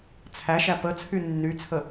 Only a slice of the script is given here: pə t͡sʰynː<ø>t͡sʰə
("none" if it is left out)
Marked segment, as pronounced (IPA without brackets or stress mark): y